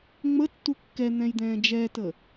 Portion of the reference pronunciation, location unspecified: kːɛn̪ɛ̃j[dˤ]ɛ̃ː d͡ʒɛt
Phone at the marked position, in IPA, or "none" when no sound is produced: d̪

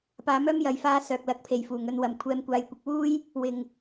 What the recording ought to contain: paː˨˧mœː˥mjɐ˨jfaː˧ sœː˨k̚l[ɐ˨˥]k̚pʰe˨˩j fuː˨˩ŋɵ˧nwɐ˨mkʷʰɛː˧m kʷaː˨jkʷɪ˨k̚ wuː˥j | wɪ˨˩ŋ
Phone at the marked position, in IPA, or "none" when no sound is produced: ɐ˨˥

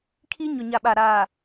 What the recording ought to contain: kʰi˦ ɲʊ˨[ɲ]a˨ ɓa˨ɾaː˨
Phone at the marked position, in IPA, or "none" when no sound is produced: ɲ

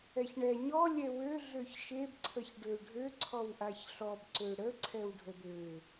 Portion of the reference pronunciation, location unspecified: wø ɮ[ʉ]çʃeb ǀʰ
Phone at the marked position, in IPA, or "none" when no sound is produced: ø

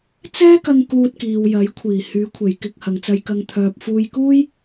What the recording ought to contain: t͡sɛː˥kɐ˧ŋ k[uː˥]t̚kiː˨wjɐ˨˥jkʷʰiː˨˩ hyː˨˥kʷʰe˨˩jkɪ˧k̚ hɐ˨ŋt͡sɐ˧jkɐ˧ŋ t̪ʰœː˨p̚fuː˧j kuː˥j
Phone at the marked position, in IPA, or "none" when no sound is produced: uː˧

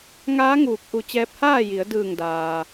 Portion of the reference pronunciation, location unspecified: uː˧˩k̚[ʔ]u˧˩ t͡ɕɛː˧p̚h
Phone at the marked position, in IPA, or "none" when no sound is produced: ʔ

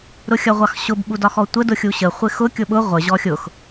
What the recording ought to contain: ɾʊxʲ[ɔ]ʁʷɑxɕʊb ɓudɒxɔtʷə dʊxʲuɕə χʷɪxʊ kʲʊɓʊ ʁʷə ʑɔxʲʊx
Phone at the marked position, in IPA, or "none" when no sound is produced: ʌ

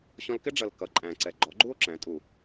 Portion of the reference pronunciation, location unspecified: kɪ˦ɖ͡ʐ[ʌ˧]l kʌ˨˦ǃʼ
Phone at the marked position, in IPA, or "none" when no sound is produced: ʌ˨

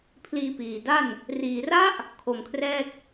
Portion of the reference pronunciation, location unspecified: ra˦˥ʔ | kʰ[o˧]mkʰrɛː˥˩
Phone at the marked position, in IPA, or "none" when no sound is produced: o˨˩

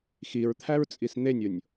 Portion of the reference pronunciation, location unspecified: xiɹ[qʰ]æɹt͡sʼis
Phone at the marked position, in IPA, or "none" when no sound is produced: t̪ʰ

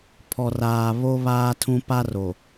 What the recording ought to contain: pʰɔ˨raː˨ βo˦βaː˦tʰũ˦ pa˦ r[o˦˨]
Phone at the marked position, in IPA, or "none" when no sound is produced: o˨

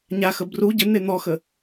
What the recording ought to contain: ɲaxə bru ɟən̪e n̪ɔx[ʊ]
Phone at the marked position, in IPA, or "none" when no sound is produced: ə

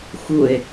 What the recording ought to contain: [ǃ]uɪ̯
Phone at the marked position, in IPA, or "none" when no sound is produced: x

